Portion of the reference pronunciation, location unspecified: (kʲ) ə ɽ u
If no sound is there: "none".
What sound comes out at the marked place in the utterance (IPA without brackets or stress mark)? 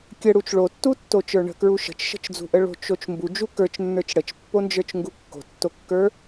kʲ